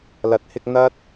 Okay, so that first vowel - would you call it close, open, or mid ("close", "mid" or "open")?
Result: open